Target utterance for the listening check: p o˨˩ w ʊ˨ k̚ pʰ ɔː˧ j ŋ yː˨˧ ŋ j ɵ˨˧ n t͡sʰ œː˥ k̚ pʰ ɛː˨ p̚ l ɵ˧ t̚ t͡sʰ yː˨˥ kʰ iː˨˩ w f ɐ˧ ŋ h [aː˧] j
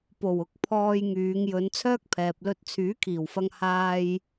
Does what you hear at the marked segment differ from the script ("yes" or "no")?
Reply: no